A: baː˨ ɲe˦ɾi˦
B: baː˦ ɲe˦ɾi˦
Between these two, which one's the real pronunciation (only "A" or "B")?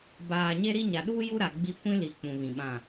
A